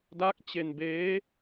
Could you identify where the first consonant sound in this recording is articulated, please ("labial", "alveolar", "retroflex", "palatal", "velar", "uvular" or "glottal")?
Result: alveolar